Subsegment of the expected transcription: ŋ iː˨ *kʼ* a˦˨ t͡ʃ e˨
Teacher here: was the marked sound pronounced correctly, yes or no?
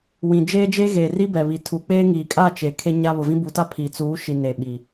yes